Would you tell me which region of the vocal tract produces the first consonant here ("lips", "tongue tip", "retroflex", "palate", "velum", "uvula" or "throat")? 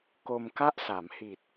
velum